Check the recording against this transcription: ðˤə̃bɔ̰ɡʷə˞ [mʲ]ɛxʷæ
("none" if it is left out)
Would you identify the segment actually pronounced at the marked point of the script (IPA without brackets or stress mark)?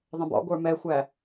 m